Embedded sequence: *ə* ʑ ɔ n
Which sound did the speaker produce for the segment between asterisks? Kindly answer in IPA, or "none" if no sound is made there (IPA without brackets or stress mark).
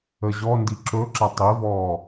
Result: ə